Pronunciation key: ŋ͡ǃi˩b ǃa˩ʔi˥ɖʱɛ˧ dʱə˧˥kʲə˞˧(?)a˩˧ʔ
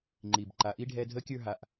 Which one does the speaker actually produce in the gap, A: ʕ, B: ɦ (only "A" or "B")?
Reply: B